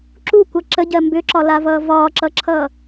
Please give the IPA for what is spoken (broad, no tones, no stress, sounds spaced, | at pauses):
ǁ u kʷ ʌ ǁ ə ɟ ɜ m b ʏ ǁ ɒ l a v ʌː v ɒː ǁ ʌ ǁʰ ʌː